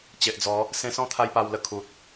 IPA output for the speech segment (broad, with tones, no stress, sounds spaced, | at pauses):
t͡ɕ e˨ ʔ d͡z ɔ˨˦ | s ẽ˧ s ɔ̃˦ t̪ʰ a˦ j p a˧ w l ə˧ kʰ u˨ t̚